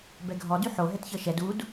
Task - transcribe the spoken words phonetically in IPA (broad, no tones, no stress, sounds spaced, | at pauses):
b ɛ ɡʱ ɔ d y ħ o ɦ ɛ t ç ɤ ʃ ɛ d u d